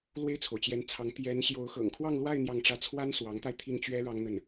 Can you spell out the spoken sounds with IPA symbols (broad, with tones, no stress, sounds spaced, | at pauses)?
l w e˥˩ ɪ̯ t͡sʰ o˩ ʊ̯ t͡ɕ j ɛ˧˥ n t͡sʰ ɑ˧˥ ŋ t̪ j ɛ˧˥ n ɕ j o˧˥ ʊ̯ x ɤ̰˨˩ ŋ kʰ w ɑ˥˧ ŋ l w a˥˧ ɪ̯ n̪ j ɑ˥˩ ŋ ʈ͡ʂ ä˥ t͡sʰ w a˥ n s w ɑ˧˥ ŋ t̪ a˧ ɪ̯ t̪ʰ i˥˩ n t͡ɕ ɥ ɛ˥ ɻ ɑ˥ ŋ n̪ ə˥˩ n